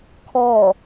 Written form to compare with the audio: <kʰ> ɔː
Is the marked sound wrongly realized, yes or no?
no